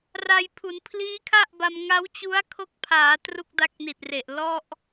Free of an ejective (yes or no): yes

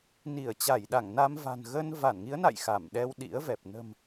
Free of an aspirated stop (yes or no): yes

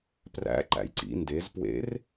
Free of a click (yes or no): no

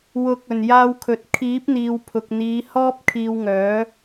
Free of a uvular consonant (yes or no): yes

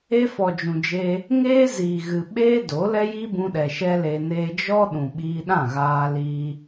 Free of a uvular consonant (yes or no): yes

